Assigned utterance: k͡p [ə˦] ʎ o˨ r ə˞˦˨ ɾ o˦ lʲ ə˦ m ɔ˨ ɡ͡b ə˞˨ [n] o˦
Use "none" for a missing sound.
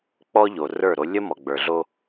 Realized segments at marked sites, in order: ɔ˦, ɮ

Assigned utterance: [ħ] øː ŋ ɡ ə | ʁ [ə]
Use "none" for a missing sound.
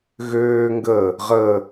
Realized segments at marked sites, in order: ɣ, ə

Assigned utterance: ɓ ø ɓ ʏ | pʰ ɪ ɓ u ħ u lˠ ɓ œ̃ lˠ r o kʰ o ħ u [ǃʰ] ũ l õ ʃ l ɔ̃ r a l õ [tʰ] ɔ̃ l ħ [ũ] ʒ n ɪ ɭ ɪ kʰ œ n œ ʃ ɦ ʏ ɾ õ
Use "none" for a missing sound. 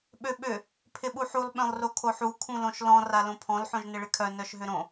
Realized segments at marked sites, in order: kʰ, pʰ, õ

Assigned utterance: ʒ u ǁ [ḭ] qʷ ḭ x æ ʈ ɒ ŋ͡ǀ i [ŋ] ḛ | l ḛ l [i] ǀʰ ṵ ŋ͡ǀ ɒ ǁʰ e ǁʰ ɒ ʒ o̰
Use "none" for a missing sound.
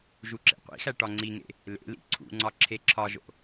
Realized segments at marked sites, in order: ḛ, ŋ, ḭ

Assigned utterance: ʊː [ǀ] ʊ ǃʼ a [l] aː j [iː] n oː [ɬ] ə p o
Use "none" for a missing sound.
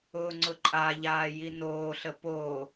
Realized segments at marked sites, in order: ŋ͡ǀ, ʎ, i, ɬ

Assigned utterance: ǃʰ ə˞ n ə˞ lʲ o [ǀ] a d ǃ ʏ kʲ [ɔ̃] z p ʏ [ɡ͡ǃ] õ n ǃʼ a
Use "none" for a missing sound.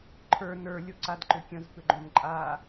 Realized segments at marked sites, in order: ǀ, ə̃, ɡ͡ǃ

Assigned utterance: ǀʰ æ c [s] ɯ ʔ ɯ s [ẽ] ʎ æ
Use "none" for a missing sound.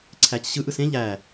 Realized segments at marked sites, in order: ɕ, ẽ

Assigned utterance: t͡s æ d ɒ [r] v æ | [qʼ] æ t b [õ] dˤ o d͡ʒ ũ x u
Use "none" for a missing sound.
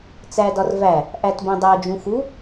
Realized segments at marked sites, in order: r, ʔ, õ

